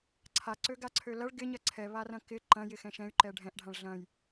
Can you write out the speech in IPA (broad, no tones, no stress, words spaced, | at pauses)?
ǀʰaǀøɡaǀʰø lɐɭ ɡɪɲɐ ǀʰɛβarɐ̃ kɪ ǃɐ̃jɪxɛ̃ ʃɛ̃y̯ǃɛ ɖʱɛ̃ʔɖʱãɭ ɮɐ̃j